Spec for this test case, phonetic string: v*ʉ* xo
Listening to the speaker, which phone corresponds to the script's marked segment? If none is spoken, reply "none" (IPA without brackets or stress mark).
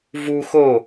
u